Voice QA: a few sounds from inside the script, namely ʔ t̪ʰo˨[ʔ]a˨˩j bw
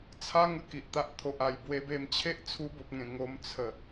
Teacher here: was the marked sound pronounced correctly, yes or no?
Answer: yes